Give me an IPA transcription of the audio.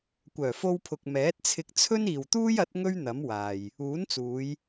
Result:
kʷ œː˨˩ f o˧ w pʰ ʊ˨ k̚ m ɛː˨˥ t̚ t͡sʰ ɪ˧ k̚ t͡sʰ ɵ˥ n iː˨ w t̪ uː˥ j ɐ˨˥ t̚ ŋ ɵ˥ ɥ n̪ ɐ˨˥ m w aː˨ j | uː˨˥ n t͡s uː˨˧ j

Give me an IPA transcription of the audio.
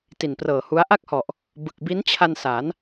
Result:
t i˨˩ n p r ɤː˨˩ h u˦˥ a̯ ʔ a˥˩ k̚ h ɔ˨˩ ʔ | b ɯ˨˩ k̚ b i˦˥ n t͡ɕʰ a˧ n s a˩˦ n

